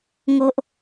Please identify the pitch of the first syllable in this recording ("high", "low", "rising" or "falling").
high